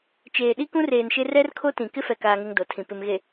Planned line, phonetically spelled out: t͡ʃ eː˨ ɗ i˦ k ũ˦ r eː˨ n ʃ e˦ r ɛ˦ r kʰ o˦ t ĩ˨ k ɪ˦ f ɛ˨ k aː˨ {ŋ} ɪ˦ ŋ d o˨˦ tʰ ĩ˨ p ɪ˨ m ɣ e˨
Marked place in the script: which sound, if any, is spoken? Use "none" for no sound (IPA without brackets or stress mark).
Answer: ŋ